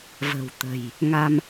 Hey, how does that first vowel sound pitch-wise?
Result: low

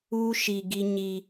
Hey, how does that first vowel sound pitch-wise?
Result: high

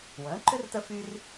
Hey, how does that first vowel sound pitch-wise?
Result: rising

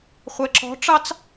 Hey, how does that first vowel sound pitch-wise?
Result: low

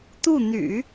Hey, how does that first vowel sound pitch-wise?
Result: falling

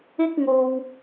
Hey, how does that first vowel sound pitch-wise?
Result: high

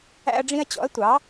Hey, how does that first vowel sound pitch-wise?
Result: high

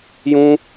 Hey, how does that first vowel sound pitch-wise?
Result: high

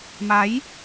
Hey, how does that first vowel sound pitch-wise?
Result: rising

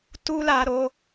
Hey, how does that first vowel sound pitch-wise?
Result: high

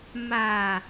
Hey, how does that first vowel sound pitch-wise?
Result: low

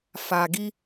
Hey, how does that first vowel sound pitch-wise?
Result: low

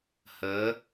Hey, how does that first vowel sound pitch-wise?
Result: rising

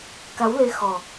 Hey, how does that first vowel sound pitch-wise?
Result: rising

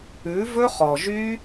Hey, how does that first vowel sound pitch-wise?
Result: rising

